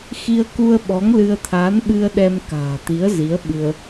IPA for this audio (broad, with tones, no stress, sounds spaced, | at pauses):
x i˧ ə̯ k u˧ ə̯ ɓ ɔ˨˦ ŋ l ɨ˧ ə̯ t̪ʰ aː˨˦ n ɓ ɨ˧ ə̯ ɗ ɛ˧ m k a̤ː˨˩ t̪ i˨˦ ə̯ z i˨˦ ə̯ ɓ ɨ˧ ə̯